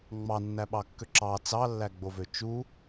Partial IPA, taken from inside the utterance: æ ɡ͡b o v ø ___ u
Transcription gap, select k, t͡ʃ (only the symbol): t͡ʃ